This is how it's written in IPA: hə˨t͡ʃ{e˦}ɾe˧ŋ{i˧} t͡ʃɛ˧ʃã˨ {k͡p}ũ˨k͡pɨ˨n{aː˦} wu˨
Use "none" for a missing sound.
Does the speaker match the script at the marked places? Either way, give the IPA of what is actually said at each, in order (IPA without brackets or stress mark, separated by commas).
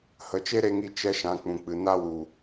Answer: e˦, i˧, k͡p, a˦